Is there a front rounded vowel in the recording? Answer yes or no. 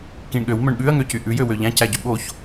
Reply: yes